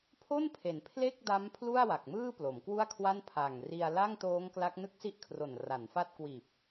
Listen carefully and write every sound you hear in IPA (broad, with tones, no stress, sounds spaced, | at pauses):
pʰ o˥˩ n pʰ e˩˦ n pʰ l e˥˩ k̚ d a˦˥ m pʰ l u˥˩ a̯ w a˨˩ k̚ m ɯː˥˩ p l o˩˦ m k w u˥˩ a̯ kʰ w a˥˩ n pʰ a˨˩ ŋ r i˧ a̯ l a˥˩ ŋ t oː˦˥ ŋ k l a˦˥ k̚ n ɯ˦˥ k̚ s i˦˥ ʔ kʰ r o˨˩ n r a˩˦ n f a˦˥ t̚ k w iː˨˩ p̚